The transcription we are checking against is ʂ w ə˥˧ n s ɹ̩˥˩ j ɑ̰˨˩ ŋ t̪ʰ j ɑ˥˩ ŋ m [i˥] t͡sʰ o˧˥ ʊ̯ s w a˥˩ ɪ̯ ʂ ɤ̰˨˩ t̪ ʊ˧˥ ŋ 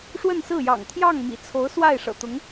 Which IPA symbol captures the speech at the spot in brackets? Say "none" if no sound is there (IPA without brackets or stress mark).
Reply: ḭ˨˩